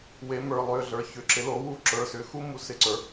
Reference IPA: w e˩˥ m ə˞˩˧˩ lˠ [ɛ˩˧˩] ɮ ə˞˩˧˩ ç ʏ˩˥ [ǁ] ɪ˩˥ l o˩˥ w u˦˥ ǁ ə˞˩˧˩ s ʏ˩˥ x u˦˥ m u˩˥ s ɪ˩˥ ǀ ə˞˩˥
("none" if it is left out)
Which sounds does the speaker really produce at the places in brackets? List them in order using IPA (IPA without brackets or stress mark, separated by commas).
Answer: ʏ˩˧˩, ǁ